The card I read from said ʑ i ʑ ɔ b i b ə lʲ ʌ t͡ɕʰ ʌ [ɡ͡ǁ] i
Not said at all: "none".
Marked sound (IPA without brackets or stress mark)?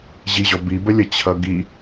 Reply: ɡ